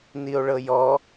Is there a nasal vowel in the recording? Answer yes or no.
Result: no